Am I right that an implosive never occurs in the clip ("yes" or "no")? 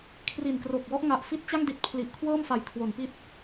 yes